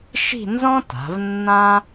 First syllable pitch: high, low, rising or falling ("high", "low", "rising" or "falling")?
falling